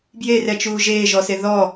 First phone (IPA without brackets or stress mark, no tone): b